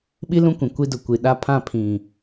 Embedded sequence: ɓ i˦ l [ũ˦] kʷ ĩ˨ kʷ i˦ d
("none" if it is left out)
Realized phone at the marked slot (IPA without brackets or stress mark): ũ˦